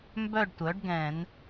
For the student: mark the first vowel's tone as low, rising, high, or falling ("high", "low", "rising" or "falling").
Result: falling